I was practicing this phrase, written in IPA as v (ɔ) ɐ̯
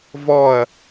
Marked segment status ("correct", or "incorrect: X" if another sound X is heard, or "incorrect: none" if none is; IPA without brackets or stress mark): correct